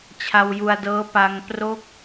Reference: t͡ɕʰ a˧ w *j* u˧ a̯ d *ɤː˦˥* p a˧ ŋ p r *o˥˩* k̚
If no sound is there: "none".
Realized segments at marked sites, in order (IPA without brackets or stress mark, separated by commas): j, ɤː˦˥, o˥˩